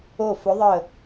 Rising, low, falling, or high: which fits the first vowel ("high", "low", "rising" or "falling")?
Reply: falling